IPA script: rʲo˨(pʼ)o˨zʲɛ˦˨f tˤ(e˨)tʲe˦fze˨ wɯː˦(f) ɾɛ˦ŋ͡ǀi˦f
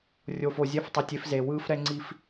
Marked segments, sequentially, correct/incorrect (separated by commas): incorrect, incorrect, correct